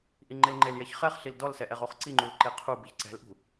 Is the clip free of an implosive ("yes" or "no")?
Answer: yes